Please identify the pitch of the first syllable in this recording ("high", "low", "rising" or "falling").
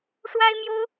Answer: high